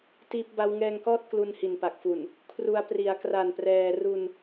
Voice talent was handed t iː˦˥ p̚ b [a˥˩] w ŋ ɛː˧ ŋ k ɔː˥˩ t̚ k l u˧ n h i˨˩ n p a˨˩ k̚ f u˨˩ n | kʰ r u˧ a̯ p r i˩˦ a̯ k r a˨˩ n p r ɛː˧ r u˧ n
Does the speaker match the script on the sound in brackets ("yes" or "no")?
no